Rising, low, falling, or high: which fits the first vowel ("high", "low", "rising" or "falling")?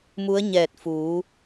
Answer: rising